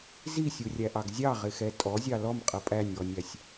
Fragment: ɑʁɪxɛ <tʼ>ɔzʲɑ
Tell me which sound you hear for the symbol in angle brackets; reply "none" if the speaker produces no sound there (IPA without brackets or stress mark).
tʼ